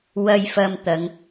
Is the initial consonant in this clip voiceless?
no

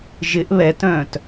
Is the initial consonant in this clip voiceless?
no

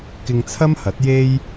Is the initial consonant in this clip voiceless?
yes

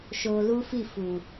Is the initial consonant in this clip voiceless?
yes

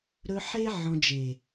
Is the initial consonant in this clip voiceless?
no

